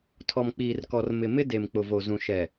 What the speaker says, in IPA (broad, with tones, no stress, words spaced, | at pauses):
tʰɔ˨mk͡piː˨rkɔ˨r mɪ˨mɪ˦de˨m k͡pʊ˨vo˨zũ˨ ʃɛ˨